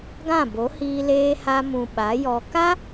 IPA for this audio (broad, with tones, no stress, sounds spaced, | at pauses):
ɡ ã˦˨ b o˨˦ h iː˧ l eː˧ h a˧ m ũ˨ ɓ a˨˦ j ɔ˨ k a˦